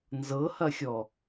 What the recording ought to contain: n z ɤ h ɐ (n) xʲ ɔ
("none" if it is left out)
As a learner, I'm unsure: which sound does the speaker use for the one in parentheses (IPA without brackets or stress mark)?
none